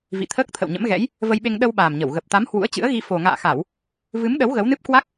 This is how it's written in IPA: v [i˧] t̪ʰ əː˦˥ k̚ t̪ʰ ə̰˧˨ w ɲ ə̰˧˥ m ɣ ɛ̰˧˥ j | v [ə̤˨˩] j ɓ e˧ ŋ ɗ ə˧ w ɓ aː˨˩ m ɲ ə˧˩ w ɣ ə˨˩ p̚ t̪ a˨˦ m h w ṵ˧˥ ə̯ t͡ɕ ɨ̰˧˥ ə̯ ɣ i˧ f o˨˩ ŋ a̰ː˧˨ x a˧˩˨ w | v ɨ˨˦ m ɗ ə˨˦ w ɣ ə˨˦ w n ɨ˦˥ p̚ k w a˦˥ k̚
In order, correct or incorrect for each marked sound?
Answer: incorrect: ḭ˧˨, incorrect: ə˧

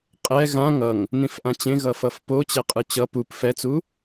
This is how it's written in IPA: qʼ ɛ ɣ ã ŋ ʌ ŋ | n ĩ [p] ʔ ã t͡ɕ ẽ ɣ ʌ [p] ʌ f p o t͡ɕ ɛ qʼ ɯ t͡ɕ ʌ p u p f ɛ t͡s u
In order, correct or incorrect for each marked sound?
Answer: incorrect: f, incorrect: f

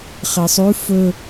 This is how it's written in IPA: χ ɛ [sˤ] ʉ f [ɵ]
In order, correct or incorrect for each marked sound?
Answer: correct, correct

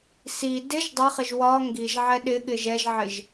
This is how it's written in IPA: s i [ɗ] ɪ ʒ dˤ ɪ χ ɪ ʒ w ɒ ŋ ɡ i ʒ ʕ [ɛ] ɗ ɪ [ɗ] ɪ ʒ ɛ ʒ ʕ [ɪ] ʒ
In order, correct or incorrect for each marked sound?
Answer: incorrect: d, correct, incorrect: ɠ, correct

